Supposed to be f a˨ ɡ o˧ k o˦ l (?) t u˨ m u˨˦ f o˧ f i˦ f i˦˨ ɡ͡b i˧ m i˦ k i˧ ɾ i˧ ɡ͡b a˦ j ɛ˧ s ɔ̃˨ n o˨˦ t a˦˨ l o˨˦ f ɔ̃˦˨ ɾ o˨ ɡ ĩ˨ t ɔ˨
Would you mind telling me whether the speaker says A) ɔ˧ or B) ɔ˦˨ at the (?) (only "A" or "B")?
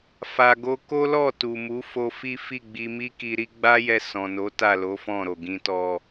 B